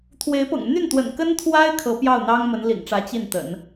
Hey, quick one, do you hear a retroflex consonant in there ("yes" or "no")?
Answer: yes